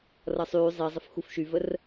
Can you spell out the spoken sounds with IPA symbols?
rʌsˤyː zˤizˤəf xufʃyvər

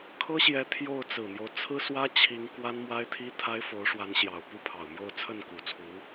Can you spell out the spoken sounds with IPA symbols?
kʰɤ˥ɕjɛ˧˥ t̪ʰjo˥˩ʊ̯ t͡sɹ̩˨˩n̪jo˦ʊ̯ t͡sʰɹ̩˥swä˥t͡ɕʰi˧˥ŋ kwa˥nmwa˥ɪ̯t̪ʰi˥ t̪ʰa˥ɪ̯fo˧˥ʊ̯ʂwa˧˥nɕjɑ˨˩ʊ̯ pu˥˩pʰɑ˨˩ʊ̯mjo˥˧ʊ̯ t͡sʰə˥˩nku˨˩t͡sʰu˧˥

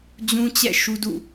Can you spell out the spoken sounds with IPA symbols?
d͡ʑũ˦t͡ɕɛ̰˦˨ ʃu˦dṵ˦˨

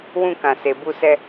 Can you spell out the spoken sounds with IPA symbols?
wũ˧ kã˨se˨bu˧sɛ˧

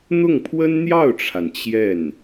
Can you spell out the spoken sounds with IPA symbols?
n̪ʊ˥˩ŋpʰwə˥nn̪jɑ˥˩ʊ̯ʈ͡ʂʰa˩n t͡ɕjɛ˥˩n

